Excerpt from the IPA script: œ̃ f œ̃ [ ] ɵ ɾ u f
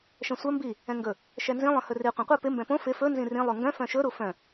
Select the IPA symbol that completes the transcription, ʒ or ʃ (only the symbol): ʃ